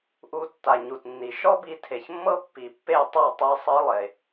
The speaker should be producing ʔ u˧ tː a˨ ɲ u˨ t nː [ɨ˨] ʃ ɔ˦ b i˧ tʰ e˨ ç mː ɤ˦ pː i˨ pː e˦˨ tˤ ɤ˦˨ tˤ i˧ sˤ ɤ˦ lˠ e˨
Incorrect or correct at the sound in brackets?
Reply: incorrect: i˨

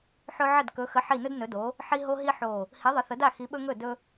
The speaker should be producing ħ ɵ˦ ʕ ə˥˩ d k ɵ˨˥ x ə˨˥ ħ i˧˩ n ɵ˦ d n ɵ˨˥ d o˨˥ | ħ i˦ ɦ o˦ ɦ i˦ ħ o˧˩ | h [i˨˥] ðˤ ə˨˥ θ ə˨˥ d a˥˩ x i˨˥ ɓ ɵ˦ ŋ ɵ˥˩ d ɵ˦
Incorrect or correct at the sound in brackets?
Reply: correct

